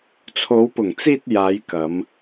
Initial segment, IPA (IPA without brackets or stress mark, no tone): t͡sʰ